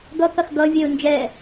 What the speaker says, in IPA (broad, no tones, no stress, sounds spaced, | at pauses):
ɡ ʌ k ɐ x ɡ ʌ vʲ ɛ ʊ̯ n d͡ʒ ɛ